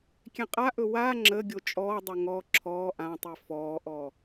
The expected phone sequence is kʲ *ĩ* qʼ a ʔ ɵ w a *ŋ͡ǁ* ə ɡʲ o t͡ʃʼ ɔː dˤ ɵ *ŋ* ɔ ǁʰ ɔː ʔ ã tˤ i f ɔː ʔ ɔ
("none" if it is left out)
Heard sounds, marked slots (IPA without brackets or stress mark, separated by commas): ẽ, ŋ͡ǁ, ŋ